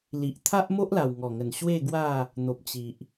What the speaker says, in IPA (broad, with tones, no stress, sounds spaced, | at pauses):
l i˨ ʔ t̪ʰ a˦ ʔ m o˦ ʔ l a˨˩ w ŋ ɔ˨˩ ŋ ə˨˩ n ɕ w e˥˧ ɡ w a˥˧ | n̪ o˨ p̚ t͡ɕ i˨ ʔ